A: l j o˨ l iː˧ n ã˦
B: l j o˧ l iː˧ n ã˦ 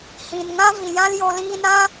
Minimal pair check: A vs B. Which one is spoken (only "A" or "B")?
B